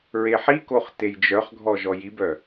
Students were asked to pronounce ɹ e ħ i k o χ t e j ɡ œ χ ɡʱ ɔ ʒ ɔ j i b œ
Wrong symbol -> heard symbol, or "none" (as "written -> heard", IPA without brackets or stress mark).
ɡ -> d͡ʒ